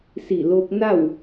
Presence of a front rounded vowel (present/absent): absent